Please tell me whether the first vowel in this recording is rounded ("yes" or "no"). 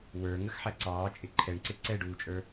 no